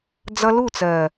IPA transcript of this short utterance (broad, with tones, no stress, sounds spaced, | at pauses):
d͡z ʌ˧ l u˦˨ t͡s ɜ˨